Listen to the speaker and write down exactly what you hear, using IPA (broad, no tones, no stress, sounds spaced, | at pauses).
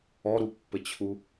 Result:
ɔ ɾ u pː ɘ t͡ɕʰ u